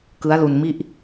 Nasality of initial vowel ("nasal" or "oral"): oral